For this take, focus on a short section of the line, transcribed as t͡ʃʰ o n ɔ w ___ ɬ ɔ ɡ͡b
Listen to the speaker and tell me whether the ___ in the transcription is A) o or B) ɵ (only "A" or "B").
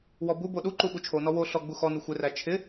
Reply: A